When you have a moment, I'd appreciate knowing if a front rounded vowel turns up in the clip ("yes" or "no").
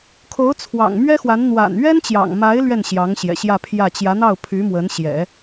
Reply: yes